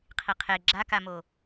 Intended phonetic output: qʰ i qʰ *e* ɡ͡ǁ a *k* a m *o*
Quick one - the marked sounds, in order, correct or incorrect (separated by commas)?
correct, correct, correct